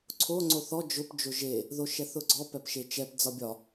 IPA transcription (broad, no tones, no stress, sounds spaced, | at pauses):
ǀʰ o ŋ͡ǀ o θ ɔ d͡ʒ ʊ p d͡ʒ o ʒ e | ð o ʃ ɛ θ ʊ ɡ͡ǀ ɔ p ɛ p ʃ e t͡ʃ ɛ p d͡z ɒ bʲ ɒ